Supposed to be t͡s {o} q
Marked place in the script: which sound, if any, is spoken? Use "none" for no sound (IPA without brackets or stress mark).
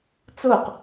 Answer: o